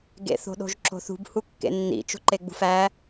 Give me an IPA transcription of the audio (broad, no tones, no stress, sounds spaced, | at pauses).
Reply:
ɡ ḛ θ o̤ ɗ o̤ ʒ ǁ o̤ θ ṳ b h u kː ḛ nː ḭ t͡ʃ o̤ ǃ e ɡ͡b ṳ f æ